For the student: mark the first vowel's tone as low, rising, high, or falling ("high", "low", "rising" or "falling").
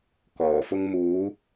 low